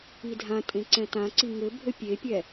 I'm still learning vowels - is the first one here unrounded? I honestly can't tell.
yes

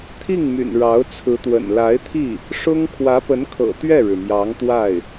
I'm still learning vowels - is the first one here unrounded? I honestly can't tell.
yes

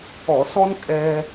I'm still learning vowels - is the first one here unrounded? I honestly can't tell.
no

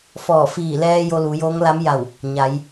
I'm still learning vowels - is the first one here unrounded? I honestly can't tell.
no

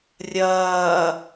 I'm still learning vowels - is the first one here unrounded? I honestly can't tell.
yes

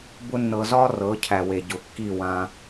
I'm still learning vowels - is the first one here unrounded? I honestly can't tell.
no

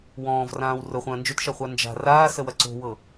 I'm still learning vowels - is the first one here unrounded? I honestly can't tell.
no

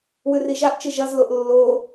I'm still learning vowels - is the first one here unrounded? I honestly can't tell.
no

